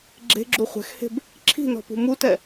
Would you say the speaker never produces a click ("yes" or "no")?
no